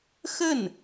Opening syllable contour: falling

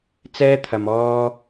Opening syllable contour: high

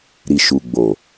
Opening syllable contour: low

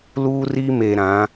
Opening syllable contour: high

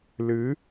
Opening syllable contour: rising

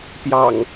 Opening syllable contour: low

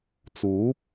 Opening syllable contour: rising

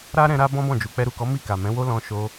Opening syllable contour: high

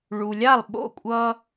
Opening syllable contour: low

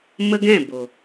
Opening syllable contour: high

